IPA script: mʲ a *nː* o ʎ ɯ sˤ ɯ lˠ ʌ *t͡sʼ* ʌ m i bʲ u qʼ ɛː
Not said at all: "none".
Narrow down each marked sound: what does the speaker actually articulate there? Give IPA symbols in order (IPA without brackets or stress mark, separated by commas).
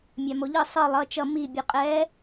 m, t͡ʃ